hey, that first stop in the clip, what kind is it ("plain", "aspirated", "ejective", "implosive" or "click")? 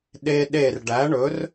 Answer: implosive